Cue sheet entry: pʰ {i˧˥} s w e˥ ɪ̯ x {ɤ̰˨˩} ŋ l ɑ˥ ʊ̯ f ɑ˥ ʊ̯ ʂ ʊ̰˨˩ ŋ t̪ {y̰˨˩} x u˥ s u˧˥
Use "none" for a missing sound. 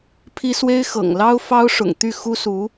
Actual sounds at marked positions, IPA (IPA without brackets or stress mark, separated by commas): i˥, ɤ̰˨˩, y˥˩